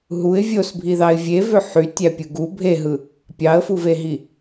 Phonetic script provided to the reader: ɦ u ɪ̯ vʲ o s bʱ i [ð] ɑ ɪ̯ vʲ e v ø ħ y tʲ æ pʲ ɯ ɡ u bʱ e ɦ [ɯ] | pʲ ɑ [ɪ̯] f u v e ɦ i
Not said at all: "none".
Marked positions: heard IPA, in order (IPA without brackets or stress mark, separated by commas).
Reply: ð, ɯ, ə̯